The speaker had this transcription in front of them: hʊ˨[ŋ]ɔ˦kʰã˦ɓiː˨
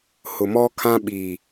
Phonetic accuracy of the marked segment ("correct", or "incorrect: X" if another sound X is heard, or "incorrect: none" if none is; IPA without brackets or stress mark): incorrect: m